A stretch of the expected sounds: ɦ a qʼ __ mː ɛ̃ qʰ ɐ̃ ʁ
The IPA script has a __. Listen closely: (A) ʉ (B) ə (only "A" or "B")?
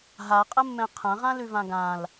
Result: B